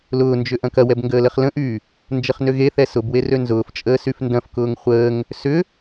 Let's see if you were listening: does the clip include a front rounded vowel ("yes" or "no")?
yes